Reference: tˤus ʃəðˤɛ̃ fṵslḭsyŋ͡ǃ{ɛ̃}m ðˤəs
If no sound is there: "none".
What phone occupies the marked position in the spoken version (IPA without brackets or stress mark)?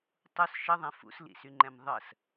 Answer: ɛ̃